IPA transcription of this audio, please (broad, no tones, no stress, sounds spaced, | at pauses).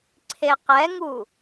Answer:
ǀʰ e q ɛ ŋ u